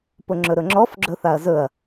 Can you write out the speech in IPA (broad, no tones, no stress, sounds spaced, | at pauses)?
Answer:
p ʊ ŋ͡ǁ ɵ ɾ ɵ ŋ͡ǁ ɔ f ɡ͡ǁ ɵ θ a ɐ̯ z ɵ ɐ̯